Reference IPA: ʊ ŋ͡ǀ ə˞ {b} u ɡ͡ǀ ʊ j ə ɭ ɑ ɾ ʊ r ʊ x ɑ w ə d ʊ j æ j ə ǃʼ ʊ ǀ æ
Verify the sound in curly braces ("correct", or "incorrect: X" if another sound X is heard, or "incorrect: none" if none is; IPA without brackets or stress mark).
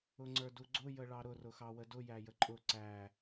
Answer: incorrect: d